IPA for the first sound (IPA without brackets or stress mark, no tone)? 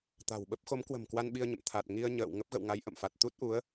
t̪